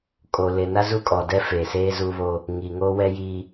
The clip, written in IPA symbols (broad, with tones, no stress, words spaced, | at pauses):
kʼo˨ lɪ˨na˦ zu˦kʼɔ˨dɛ˦ fe˨seː˦zuː˦βo˦ | ŋi˨ŋoː˦wɛ˦jiː˦